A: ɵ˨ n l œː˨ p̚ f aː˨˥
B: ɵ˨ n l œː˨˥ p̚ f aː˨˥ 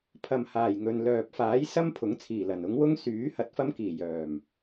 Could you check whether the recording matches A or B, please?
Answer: A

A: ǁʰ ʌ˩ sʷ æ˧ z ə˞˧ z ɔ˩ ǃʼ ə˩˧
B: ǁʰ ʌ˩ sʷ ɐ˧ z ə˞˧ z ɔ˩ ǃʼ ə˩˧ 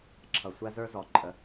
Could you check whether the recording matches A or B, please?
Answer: A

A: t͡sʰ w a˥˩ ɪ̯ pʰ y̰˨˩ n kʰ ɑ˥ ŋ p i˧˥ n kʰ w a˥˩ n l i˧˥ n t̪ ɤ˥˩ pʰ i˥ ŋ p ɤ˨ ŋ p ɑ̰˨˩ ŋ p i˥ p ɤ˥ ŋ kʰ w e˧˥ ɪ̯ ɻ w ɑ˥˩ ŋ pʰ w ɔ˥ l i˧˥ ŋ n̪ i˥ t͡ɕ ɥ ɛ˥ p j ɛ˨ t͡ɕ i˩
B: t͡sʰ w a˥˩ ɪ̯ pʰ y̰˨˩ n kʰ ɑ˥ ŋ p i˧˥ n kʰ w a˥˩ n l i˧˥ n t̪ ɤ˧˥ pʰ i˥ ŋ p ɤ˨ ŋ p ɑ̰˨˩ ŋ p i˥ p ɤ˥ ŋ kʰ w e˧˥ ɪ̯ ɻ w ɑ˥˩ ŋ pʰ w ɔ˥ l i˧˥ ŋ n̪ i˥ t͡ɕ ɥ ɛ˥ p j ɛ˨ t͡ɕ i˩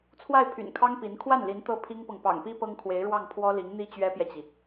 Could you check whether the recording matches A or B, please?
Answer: A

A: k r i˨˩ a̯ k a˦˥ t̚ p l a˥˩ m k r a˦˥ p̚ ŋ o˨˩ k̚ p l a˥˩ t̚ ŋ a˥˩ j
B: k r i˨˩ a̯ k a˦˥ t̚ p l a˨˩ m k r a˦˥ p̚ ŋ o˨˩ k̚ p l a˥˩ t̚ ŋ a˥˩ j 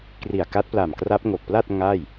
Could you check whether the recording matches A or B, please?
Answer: B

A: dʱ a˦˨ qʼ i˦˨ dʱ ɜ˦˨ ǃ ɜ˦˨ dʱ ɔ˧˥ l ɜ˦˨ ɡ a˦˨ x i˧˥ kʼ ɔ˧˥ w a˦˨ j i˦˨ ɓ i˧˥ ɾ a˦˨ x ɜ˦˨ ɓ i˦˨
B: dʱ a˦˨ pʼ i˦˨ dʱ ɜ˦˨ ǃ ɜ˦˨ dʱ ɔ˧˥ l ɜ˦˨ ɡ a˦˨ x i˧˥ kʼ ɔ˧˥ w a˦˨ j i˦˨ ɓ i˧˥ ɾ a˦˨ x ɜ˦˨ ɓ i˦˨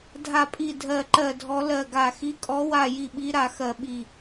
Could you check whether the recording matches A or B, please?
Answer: B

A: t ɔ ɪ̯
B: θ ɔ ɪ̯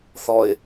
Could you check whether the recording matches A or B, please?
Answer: B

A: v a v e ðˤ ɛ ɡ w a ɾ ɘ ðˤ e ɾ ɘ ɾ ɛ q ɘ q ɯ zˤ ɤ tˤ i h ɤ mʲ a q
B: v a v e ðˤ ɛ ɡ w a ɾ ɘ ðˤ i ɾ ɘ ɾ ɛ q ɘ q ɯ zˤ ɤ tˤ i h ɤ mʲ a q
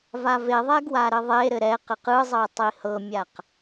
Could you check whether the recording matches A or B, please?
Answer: A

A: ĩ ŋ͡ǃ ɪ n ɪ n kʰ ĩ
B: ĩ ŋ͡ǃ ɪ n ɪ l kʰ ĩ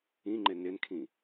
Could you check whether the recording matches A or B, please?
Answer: A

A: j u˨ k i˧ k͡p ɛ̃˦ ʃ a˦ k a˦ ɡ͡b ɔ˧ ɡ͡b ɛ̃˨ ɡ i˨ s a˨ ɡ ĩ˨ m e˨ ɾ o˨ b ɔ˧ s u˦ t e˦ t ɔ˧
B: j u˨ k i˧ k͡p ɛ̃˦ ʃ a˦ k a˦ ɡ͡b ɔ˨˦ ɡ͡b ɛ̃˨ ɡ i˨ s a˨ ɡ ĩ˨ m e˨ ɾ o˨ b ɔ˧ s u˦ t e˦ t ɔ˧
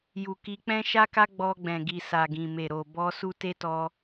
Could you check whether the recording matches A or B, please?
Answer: A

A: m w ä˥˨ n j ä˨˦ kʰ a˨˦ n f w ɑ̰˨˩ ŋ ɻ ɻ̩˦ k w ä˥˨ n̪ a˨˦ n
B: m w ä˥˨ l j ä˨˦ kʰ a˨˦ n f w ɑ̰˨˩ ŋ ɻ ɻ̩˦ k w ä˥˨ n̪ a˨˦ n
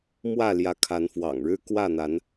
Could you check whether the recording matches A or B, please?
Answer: B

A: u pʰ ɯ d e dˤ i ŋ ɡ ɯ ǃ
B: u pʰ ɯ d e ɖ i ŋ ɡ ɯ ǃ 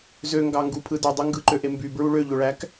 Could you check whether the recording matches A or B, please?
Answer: A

